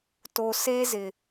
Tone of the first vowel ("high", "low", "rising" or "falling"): low